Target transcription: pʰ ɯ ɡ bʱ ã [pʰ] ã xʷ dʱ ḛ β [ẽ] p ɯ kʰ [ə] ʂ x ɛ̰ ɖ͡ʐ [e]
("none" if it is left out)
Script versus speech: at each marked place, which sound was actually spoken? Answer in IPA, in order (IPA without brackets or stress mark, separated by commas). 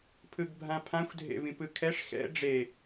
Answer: pʰ, ĩ, ɛ, e